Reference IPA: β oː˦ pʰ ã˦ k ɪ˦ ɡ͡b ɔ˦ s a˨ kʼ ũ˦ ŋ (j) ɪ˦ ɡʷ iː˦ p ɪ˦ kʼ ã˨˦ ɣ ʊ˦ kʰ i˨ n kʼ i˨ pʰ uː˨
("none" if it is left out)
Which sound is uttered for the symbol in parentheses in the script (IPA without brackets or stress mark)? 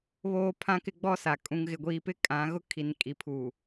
ɣ